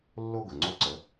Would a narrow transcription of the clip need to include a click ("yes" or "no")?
yes